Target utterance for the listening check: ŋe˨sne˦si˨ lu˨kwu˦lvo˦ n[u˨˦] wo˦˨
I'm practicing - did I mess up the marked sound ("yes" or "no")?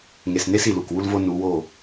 no